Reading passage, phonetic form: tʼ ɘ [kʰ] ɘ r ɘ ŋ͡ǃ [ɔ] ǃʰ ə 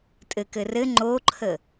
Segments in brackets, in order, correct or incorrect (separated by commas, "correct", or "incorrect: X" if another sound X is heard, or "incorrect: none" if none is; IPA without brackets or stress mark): incorrect: k, incorrect: o